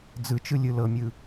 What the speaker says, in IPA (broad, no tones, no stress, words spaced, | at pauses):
d͡zɯt͡ʃɯlʲɯ lɤmʲɯ